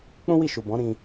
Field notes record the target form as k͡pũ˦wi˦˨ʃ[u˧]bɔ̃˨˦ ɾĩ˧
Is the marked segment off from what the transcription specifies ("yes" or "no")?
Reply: yes